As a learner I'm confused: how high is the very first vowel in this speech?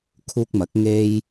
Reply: high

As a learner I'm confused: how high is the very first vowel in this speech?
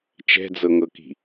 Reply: mid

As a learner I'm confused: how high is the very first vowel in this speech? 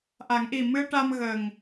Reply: low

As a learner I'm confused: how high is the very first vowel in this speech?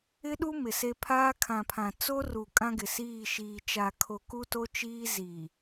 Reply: high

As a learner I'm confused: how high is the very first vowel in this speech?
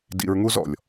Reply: high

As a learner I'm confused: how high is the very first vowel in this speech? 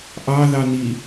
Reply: low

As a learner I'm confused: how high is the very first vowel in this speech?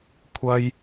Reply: low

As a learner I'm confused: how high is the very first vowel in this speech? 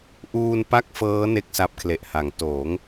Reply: high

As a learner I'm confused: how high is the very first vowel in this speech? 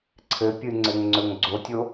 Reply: mid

